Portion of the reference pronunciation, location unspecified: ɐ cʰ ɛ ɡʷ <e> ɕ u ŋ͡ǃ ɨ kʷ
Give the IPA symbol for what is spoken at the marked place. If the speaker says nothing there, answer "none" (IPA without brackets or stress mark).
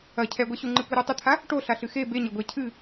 ɛ